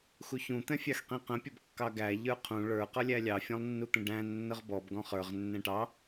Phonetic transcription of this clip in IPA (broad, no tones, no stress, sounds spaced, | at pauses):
x u ç ũ t̪ ɛ̃ fʲ ɑ x q ĩ q ə̃ pʲ ʌ b kː ɑ ɡ æ ʎ ə˞ qʰ ũ ɭ ə˞ q ʌ lʲ æ lʲ ɑ fʲ ɔ̃ lˠ nː u t̪ ə̃ ɖ æ̃ nː ə ʁ b ɔ b ɡ ɔ̃ χ ə˞ ʁ nː ɛ̃ ʈ ɑ